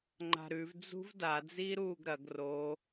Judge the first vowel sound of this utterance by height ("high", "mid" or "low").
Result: low